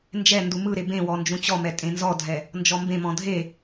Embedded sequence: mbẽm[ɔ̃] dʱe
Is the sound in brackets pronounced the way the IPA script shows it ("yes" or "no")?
yes